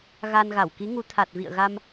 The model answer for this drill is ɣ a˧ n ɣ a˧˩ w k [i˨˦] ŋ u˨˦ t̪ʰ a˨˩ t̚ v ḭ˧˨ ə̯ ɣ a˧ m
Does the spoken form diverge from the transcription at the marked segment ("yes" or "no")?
no